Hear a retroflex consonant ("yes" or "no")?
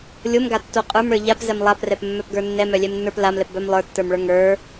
yes